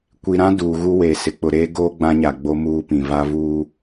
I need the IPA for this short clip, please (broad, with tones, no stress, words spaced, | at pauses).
kʷi˨ɾã˦ duː˨ ɣu˦weː˨ sɪ˨k͡pʊ˨ɾeː˦ ɡoː˦ɡ͡bã˦ɲa˨ ɡ͡bo˦ muː˦pĩ˨ va˦vuː˦